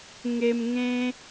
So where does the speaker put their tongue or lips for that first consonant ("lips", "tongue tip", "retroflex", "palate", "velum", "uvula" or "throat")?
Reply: velum